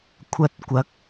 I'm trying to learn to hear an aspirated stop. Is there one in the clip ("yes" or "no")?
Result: yes